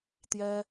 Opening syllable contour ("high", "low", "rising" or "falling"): high